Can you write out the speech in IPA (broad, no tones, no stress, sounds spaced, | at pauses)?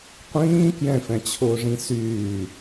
qʷ ĩː k j ɛ̃ f ɛ̃ t͡ɕʰ ʊː ʐ ĩ s yː